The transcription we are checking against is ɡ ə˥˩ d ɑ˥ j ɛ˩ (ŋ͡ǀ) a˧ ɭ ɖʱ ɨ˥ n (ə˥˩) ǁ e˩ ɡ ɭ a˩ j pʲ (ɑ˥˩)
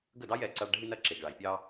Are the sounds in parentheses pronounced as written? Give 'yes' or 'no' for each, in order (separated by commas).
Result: no, no, no